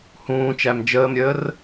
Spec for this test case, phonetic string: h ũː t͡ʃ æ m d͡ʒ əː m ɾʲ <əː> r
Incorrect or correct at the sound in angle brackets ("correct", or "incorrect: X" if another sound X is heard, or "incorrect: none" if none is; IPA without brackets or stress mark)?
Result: correct